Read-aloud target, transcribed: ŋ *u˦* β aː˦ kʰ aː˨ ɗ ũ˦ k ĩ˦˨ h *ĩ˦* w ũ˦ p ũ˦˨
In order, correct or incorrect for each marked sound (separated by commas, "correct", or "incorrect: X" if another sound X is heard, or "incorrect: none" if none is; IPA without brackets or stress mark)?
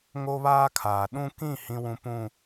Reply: incorrect: o˦, correct